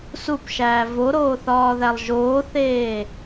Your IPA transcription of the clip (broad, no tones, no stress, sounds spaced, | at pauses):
s u p ʃ æː v o ɾ oː θ ɒː ð æ lˠ ʒ oː θ eː